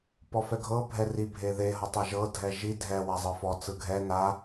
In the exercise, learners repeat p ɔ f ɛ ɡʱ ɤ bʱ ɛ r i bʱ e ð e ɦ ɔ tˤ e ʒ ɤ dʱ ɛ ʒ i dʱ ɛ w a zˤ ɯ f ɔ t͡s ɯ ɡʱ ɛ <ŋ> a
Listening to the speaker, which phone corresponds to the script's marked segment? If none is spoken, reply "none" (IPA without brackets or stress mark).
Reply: n